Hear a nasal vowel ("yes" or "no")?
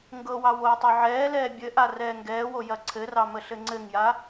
no